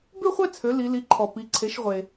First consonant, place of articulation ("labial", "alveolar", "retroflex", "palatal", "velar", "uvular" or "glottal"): labial